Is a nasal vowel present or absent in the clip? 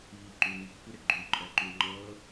absent